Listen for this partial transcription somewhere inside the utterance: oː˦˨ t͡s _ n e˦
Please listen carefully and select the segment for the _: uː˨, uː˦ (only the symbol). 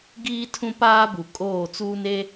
uː˦